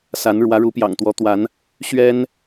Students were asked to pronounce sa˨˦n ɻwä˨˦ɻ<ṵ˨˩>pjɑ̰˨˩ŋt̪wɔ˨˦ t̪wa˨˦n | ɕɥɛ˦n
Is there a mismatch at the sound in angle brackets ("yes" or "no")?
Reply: yes